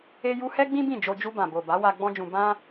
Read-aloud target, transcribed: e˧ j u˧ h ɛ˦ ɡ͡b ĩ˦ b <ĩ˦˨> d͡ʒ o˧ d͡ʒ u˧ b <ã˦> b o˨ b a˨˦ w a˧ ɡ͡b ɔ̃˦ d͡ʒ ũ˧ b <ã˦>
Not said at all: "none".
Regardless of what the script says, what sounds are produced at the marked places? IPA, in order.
ĩ˦˨, ã˨, ã˦

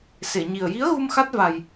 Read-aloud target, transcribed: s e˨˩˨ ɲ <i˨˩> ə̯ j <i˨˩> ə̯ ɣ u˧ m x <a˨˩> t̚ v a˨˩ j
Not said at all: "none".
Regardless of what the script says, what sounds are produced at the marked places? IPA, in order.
i˨˩, i˧˥, a˦˥

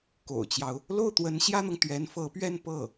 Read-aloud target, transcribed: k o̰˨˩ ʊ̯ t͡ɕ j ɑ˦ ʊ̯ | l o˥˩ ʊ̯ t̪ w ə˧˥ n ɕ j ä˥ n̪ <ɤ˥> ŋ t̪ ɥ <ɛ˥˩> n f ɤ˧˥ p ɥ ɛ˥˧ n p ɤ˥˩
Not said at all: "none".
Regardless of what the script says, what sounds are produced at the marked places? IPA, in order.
ɤ˨, ɛ˧˥

